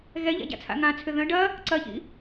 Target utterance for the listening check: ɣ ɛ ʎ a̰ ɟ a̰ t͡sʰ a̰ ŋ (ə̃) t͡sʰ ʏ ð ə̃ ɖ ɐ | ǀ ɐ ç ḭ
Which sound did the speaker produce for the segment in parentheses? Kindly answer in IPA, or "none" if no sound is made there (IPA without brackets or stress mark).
ã